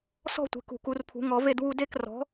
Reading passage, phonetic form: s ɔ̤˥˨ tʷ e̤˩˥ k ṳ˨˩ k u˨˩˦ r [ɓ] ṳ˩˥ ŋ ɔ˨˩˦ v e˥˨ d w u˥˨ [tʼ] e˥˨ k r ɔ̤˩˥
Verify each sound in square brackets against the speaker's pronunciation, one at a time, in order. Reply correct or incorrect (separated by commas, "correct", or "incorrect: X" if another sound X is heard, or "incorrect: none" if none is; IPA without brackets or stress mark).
incorrect: pʰ, incorrect: d